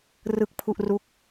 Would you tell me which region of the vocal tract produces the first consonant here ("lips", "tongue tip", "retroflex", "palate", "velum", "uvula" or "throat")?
tongue tip